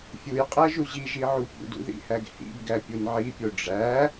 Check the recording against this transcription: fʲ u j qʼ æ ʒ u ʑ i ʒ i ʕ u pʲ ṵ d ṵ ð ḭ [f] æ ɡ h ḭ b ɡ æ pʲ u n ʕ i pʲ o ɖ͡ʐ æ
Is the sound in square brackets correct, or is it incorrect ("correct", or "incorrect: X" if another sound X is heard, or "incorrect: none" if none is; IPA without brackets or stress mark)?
incorrect: h